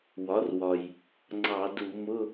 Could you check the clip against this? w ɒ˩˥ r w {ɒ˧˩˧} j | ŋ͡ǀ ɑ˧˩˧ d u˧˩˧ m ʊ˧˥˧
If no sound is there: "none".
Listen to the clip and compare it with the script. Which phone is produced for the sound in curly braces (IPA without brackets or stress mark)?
ɒ˩